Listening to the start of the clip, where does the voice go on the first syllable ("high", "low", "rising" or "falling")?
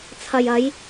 low